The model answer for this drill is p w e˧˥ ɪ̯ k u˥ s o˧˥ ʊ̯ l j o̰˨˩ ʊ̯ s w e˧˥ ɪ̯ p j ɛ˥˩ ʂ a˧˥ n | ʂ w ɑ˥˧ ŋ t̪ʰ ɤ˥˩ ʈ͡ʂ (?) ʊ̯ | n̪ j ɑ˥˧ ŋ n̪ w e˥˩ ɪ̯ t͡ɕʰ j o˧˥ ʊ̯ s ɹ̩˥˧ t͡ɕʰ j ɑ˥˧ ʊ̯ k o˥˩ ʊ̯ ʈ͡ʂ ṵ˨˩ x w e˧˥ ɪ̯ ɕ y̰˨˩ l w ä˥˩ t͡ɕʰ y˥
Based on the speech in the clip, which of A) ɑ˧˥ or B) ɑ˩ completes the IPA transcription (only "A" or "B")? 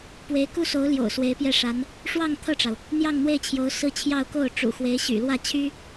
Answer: B